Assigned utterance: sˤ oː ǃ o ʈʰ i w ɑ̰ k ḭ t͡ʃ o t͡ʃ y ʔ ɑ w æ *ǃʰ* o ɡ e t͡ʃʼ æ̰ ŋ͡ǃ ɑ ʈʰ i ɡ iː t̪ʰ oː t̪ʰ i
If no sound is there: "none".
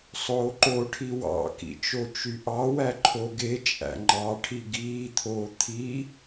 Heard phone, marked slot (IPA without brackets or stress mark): ǃʰ